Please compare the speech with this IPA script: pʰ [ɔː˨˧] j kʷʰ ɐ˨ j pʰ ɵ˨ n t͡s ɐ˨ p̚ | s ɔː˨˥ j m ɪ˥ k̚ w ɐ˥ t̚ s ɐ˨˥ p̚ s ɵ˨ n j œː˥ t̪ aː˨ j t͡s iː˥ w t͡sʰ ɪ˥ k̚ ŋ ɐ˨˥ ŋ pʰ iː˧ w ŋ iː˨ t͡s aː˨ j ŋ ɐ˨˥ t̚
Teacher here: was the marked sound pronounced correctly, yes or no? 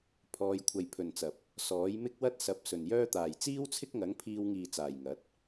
yes